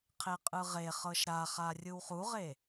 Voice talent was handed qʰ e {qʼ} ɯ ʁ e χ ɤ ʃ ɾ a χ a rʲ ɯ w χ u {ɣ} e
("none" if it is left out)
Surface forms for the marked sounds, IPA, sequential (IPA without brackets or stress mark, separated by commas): qʼ, ʁ